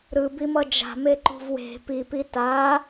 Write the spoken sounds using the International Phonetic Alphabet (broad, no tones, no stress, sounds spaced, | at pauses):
ɾ ɯ b i m ʌ d͡ʒ a̤ m e ǃ ṳ v w e̤ p i p i t a